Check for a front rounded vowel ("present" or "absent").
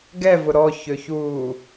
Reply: present